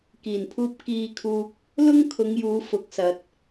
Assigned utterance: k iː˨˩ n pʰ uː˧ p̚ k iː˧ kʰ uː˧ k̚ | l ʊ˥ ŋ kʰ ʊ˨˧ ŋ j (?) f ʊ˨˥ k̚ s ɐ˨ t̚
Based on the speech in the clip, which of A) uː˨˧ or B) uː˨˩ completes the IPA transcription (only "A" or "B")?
A